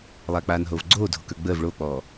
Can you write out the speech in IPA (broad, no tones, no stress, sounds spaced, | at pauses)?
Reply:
lˠ aː k͡p aː n ɦ oː v ɡ͡ǀ oː dʱ o k ə˞ ɡ͡b əː v ɭ oː k͡p ɔː